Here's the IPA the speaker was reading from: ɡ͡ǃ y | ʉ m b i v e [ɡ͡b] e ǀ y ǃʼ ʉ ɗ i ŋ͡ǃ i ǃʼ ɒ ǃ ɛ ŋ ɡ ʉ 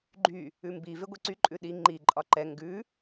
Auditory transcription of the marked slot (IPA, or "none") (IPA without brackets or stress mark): ɡʷ